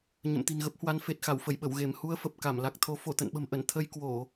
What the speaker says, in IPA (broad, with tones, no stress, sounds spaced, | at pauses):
ɲ ə̰˧˨ m t̪ i̤˨˩ n ɣ ə˦˥ p̚ h w a˨˦ n f e˨˩ t̚ x a˧˩ w f ə˧˩ j ɓ ə˧˩ w ɣ e˧˩ m h u˧ ə̯ f ə˨˩ p̚ k a˧˩ m l a˨˩ k̚ t̪ʰ o˨˦ f o˧˩ t̪ ə̰˧˨ n ɓ ə̤˨˩ m ʔ ə˧˩ n t̪ʰ ə˧ j k w o˧˩˨